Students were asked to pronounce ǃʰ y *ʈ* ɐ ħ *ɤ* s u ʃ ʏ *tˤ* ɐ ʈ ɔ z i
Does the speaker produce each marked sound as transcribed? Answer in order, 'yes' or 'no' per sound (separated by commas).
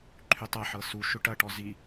no, yes, no